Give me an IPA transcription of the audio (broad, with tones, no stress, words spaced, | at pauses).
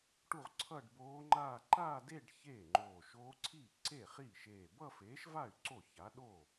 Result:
ʈu˥˧ʁǀʰʌː˥˧ɖboː˦˥ŋ͡ǃaː˥˧ ǃaː˥˧de˥˧ɖ çeː˥˩ŋ͡ǃoː˧˩ʃoː˦˥ ǀʰiː˥˩ǀe˥˩χiː˥˩ʃeː˧˩ bʌ˥˧feː˨˥ʃva˥˩y̯ ǀo˥˩ça˨˥ɗo˥˩